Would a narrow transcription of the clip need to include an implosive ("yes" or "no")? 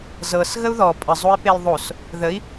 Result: no